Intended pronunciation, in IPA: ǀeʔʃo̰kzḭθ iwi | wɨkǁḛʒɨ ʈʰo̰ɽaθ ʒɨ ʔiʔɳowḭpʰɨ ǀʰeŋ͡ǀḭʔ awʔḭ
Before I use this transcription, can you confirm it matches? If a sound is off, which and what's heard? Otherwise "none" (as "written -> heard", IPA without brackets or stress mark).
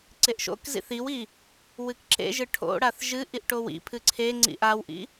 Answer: ɳ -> ʈ